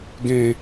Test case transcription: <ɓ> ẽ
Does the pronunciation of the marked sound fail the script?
yes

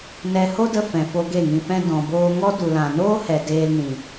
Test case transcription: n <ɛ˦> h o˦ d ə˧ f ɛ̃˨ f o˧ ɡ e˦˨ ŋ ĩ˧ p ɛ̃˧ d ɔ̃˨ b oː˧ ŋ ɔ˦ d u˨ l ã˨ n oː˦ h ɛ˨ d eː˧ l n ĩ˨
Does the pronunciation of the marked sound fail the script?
yes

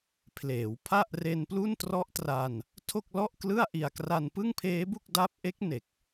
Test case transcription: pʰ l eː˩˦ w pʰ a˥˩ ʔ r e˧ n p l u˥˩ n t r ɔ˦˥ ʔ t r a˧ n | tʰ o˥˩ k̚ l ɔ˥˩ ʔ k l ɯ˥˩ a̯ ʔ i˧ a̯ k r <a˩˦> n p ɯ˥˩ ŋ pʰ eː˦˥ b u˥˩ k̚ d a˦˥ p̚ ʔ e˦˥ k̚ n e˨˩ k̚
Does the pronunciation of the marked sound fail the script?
yes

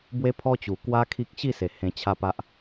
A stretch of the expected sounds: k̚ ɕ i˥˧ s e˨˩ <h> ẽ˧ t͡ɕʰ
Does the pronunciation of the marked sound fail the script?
no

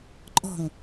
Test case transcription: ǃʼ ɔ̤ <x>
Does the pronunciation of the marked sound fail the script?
yes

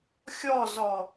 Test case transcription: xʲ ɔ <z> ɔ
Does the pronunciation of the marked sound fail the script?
no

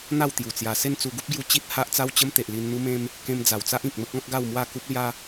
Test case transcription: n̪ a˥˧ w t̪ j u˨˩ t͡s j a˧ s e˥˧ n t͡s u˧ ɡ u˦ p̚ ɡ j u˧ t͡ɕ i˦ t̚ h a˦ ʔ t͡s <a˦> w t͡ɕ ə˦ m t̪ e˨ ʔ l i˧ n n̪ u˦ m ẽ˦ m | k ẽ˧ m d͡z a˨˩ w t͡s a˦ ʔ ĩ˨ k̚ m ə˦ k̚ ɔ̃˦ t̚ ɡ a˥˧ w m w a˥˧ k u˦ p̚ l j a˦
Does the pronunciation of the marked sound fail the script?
no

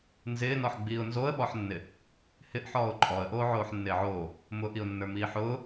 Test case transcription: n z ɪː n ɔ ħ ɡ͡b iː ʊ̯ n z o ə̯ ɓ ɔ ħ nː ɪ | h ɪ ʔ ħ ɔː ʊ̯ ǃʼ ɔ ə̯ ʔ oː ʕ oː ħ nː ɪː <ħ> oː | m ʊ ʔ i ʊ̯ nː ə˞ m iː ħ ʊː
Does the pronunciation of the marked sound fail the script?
yes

